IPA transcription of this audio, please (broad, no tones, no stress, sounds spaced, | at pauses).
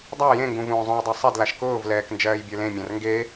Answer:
dˤ a j ẽ ŋ ɡ ũ v ũː zˤ ũ j dˤ ɜ sˤ ɛ d l a ʃ k ʊː v l ɛː k n d͡ʒ ɜː j bʲ ə˞ l ẽ mʲ ã r ŋ ɡ e